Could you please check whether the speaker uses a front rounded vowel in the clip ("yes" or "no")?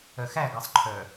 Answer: yes